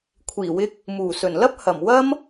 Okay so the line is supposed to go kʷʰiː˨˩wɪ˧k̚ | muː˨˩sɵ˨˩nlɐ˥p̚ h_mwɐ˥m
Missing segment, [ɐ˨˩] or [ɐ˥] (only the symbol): ɐ˨˩